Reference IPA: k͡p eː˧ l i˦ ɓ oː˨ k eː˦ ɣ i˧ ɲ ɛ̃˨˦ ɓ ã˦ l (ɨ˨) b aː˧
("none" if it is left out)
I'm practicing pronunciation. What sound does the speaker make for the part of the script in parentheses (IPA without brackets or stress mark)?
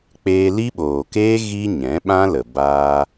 ə˨